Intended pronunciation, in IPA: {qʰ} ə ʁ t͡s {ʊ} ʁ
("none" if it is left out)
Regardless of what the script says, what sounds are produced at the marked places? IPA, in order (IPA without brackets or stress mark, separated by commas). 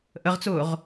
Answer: ʔ, ʊː